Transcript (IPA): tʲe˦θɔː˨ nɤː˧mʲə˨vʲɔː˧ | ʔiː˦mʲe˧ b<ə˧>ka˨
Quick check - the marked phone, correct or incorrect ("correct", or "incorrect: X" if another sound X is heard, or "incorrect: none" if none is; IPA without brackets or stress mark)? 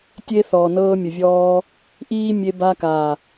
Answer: incorrect: a˧